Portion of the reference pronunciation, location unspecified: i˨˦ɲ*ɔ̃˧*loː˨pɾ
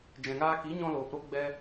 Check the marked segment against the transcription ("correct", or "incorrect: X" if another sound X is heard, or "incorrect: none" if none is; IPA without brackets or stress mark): correct